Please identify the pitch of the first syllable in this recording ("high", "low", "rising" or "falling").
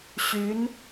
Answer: rising